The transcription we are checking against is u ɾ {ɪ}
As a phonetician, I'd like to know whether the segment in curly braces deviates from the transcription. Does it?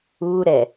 yes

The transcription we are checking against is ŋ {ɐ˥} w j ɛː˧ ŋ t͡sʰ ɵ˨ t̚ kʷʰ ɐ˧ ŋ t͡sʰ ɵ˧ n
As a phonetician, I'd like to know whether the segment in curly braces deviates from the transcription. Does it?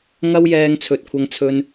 no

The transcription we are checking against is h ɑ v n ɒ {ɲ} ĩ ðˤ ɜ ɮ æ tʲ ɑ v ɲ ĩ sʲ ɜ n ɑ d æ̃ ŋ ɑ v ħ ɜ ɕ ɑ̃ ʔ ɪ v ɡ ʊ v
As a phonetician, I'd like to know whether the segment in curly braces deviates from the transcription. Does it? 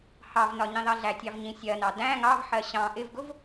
no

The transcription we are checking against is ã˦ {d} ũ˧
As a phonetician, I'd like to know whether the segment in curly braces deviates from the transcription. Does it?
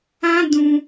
no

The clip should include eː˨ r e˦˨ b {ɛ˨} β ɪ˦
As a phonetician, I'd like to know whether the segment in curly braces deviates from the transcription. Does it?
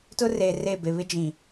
yes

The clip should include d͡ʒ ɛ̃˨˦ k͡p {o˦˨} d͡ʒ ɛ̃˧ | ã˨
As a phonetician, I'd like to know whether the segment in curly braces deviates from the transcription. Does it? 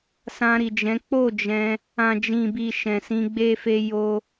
no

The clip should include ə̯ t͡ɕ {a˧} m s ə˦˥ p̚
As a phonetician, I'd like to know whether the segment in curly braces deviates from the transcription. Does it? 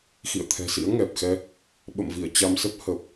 no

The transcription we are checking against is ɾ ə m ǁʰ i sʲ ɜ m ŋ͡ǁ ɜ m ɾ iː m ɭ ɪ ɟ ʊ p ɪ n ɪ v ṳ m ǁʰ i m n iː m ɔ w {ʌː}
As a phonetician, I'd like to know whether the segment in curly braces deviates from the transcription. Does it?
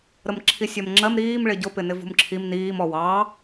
yes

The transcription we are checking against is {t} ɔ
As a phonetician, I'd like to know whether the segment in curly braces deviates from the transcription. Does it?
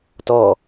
no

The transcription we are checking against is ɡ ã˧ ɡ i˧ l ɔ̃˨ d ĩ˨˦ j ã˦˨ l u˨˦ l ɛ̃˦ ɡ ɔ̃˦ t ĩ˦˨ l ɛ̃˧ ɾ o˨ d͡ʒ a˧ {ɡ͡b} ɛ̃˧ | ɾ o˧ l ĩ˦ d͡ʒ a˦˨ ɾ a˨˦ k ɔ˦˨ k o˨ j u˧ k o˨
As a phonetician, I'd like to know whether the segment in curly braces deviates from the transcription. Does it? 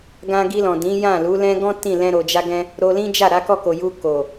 yes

